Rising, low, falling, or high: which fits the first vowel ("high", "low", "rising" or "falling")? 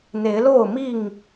rising